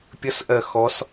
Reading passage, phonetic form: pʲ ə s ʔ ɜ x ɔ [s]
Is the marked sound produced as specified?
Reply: yes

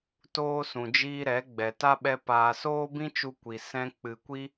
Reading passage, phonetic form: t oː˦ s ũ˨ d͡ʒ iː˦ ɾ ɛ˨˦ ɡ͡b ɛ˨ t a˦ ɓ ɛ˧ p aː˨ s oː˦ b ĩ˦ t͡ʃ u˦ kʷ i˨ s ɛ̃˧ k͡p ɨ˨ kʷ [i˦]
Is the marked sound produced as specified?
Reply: yes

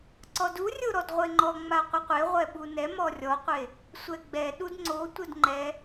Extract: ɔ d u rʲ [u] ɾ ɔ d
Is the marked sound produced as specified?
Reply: no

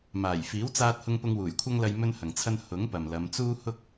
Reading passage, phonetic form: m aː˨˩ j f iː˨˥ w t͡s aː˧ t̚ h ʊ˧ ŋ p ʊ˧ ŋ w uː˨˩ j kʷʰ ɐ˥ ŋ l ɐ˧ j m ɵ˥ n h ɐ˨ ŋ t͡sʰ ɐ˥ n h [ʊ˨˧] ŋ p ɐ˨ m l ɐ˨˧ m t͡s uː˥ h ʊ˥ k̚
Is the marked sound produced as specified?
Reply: no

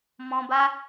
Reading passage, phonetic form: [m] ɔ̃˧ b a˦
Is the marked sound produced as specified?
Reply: yes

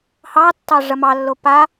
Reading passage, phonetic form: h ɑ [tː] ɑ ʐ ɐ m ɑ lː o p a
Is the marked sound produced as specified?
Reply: yes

